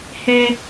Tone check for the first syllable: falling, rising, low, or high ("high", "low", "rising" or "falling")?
high